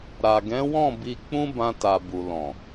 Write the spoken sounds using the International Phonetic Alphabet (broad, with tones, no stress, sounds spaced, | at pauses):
ɾ a˨ ɡ ɛ̃˨˦ w ɔ̃˦˨ b i˧ k͡p ũ˦ b ã˧ t a˨ b u˨ l ɔ̃˨